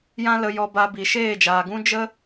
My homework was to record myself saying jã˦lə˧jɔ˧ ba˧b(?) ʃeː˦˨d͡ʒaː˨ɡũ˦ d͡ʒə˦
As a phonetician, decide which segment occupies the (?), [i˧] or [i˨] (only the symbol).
i˨